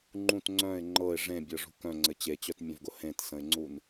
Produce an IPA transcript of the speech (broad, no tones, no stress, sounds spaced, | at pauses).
ŋ͡ǃ ũ t ŋ͡ǀ œ̃ ɪ̯ ŋ͡ǃ ɤ ɪ̯ ʐ ẽ bʲ ɤ ʐ ṳ k œ̃ ŋ͡ǀ ɘ t͡ɕ e t͡ɕ œ t mʲ œ̃ v ɡ ʊ h ẽ t s ə̃ ɪ̯ ŋ͡ǀ u n